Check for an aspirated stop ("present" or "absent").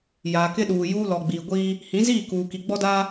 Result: absent